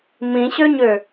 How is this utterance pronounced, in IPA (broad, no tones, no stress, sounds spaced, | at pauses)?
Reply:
m ĩ ɕ ø ɲ ø